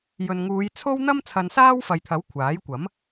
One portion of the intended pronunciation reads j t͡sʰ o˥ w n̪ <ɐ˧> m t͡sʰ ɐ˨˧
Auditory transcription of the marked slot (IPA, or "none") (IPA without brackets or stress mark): ɐ˥